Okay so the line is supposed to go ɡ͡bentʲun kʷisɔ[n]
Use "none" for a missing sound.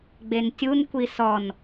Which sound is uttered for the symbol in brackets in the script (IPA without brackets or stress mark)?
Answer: n